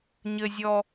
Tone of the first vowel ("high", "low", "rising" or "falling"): low